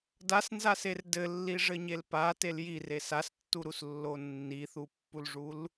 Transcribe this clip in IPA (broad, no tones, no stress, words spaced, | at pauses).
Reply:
dasnzaser dɘlːiʐɘɲel patel jires astːuɾuslːo nːiθupːulʐul